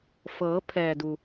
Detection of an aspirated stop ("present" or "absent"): present